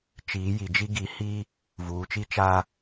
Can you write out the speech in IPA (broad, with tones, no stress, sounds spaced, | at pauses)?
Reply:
t͡ʃ iː˨˦ j i˨ d͡ʒ i˦ ɡ i˨˦ h i˦ | v uː˨ t͡ʃ i˦ t͡ʃ a˦